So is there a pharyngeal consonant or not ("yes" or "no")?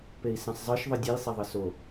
no